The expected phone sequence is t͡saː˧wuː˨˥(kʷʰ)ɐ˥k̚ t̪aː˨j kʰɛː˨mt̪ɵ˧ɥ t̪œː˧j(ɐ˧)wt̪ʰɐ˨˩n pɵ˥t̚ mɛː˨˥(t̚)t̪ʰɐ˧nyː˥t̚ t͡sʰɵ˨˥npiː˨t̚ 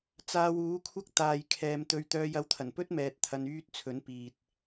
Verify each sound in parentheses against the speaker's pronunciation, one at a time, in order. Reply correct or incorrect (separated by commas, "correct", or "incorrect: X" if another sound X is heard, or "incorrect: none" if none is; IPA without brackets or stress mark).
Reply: correct, correct, correct